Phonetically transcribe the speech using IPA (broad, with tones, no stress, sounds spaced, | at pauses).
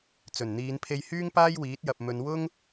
t͡s ɵ˨˩ n n̪ iː˨˧ n pʰ e˧ j h yː˥ ŋ p aː˥ j w iː˨˥ t̚ j ɐ˨ p̚ m ɵ˨˧ n w ʊ˥ ŋ